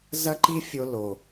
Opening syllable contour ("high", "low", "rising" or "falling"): high